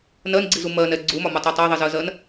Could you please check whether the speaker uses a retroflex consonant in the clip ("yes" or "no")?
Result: no